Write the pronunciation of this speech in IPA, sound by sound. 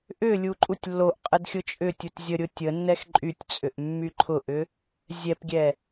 ʔ ʏ lʲ u ǃʼ u tʲ lː o ʔ qʼ ə d xʲ ʊ t͡ʃʼ ʏ tʲ u t zʲ ə ɾʲ ʊ tʲ ə nː ɛ x ǃʼ y tʲ t͡sʼ ʏ ʔ mː y ǃʰ ʊ ʔ ʏ | zʲ ɛ p ɡʲ ɛ

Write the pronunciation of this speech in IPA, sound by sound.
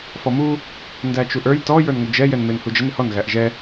f ɔ m u | n d æ t͡ʃ u ʔ ə˞ j t ɔ j ə˞ n ŋ ʊ d͡ʒ ɛ j ɛ n m ɪ n h u d͡ʒ ə n ɪ h ɔ n ɣ æ ʔ ʒ ɛ

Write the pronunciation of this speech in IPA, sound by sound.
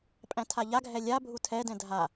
pʼ æ̃ tʰ a ʎ a ɡʱ ɛ lʲ a bʱ u tʰ ɛ d ɛ̃ dʱ a

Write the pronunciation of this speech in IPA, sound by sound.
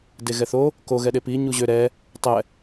d e ɣ ɛ θ o | k o ɣ ɛ ɗ e p i ɲ u ʑ ø ɾ ɛ | tˤ ɛ

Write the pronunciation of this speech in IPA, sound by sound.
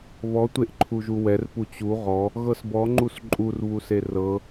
β ɔ tʷ e ʔ ǃʰ u ʒ u w ɛ r p u t͡ɕ u ʁ ɔ | ɣ ɤ s b ɔ ŋ͡ǃ u s ǃʼ u r β u s e r ɤ

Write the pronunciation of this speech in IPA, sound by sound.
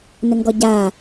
n ə ŋ ɡ ɔ ɟ a

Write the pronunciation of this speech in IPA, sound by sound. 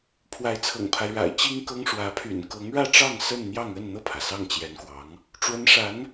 pʰ w a˧˥ ɪ̯ t͡sʰ ɤ̰˨˩ ŋ pʰ a˦ ɪ̯ ɻ a̰˨˩ ɪ̯ t͡ɕ i˥ ŋ k ɤ˥ ŋ ʂ w ä˧˥ pʰ y̰˨˩ n k ɤ˧˥ ŋ ɻ ä˥˧ ʈ͡ʂ ɑ˥˧ ŋ s ə˥˧ n n̪ j ɑ˥˧ ŋ ə˥˧ n n̪ ɤ˥˩ pʰ ä˩ s ɑ˥˩ ŋ t͡ɕ j ɛ˧˥ n k w ɑ˧˥ ŋ | ʈ͡ʂ w ə˧˥ n ʂ a˧˥ n

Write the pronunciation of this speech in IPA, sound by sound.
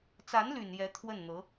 t͡s a˧˥ n l y˨˩ n j ɛ˧˥ t̪ʰ w ə˥˩ n n̪ ɤ˧˥

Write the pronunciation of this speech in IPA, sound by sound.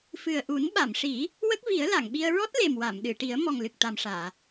f ɨ˨˩ ə̯ ʔ u˨˩˦ n ɓ a˨˩˨ m ʂ i˨˩˦ | w ə˦˥ k̚ v i˨˩˦ ə̯ l a˨˩˨ ŋ ɓ i˧ ə̯ ɹ ɔ˦˥ t̚ l e˨˩ m w a˨˩˨ m ɗ ɨ˨˩˨ ʈ i˨˩˦ ə̯ m ɔ˨˩ ŋ l ɨ˨˩ k̚ t̪ a˨˩ m ʂ aː˨˩˨

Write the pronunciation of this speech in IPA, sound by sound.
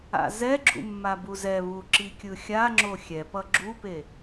a̰ z ɛ ɡ͡ǁ ṵ mː a b u z ɛ β u ǁ i kʲ ɯ xʲ a ŋ͡ǁ o xʲ ɛ p ʌ ɡ͡ǁ u p e

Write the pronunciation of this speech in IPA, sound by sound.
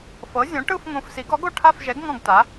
f ɤ˨˥ zʲ õ˨˥ ʈ ɯ˥˧ f ŋ õ˨˥ f s i˨˥ ɡ ɔ˨˥ ɡ o˥˧ ʈʰ a˥˧ f ʒ ɛ˨˥ ɡ ŋ ɔ̃˥˧ ɡ t a˨˥

